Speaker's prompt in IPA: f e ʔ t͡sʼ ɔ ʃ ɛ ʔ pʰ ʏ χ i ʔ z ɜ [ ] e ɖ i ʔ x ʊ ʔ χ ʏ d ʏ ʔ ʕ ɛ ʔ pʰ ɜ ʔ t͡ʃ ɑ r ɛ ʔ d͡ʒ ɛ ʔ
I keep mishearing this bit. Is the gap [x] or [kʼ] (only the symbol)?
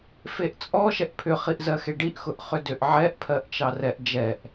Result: x